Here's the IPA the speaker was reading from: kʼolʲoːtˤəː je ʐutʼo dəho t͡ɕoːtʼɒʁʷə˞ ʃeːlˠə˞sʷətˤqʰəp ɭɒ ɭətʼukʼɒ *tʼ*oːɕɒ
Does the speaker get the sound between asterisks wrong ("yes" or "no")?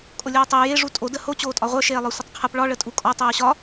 yes